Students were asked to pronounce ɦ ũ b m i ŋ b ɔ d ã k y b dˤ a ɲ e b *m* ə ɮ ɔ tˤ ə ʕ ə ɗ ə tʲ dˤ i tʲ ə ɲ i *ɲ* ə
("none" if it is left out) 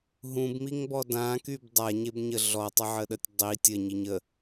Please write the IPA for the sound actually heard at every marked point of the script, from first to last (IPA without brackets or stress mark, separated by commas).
ɲ, ɲ